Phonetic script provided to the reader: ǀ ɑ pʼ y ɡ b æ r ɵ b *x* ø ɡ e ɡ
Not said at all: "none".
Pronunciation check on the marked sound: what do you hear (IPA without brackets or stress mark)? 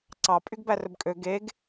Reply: kʼ